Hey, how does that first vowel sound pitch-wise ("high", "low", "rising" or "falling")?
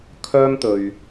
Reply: high